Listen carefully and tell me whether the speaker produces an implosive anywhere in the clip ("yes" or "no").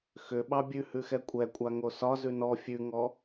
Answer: yes